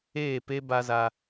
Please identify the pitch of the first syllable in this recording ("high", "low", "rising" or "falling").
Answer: falling